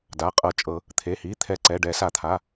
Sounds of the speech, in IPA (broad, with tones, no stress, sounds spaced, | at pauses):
d a˩˧˩ qʼ ɤ˨˩˦ t͡ʃʼ ɤ˨˩˦ | t̪ʰ e˩˧˩ h i˩˧˩ t̪ʰ ɛ˨˩˦ ǀ ɛ˩˧˩ ɖ ɛ˨˩˦ s a˨˩˦ t̪ʰ a˩˧˩